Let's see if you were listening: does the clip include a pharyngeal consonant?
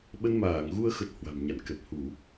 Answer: no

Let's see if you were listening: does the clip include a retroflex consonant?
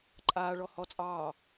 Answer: yes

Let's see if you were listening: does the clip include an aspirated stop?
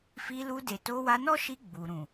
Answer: no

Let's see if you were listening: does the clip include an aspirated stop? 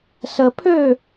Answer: yes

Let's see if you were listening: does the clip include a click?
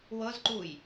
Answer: yes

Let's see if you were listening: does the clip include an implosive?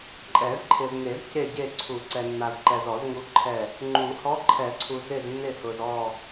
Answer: no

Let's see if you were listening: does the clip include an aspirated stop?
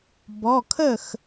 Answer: yes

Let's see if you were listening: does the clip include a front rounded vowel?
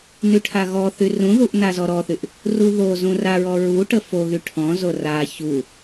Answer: yes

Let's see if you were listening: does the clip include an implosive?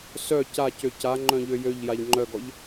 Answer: no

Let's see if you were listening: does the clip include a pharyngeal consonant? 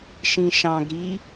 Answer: no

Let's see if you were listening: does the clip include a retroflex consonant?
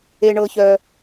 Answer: yes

